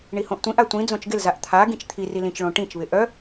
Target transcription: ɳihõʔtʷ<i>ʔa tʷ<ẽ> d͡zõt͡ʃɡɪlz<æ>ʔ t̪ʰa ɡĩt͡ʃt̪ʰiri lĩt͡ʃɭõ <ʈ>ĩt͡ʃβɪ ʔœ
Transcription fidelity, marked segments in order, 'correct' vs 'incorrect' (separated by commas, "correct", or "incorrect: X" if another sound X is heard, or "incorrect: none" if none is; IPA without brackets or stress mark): incorrect: ĩ, incorrect: ĩ, incorrect: a, correct